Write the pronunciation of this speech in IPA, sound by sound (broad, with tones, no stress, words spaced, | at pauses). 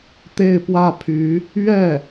t̪e˥˧ɪ̯pwä˥˩ pʰy˧˥ | ɥɛ˥˩